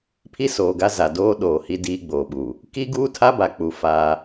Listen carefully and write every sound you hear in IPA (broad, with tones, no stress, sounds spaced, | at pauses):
pʰ i˦ s oː˨ ɡ a˦ z a˨ d oː˦ ɗ oː˨ h i˦ d iː˦ ɡ͡b oː˨ ɓ u˨ | k i˦ ɡ uː˦ tʰ a˦ b a˨ k͡p u˨ f aː˦